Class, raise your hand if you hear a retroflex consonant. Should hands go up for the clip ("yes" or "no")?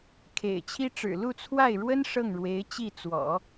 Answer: yes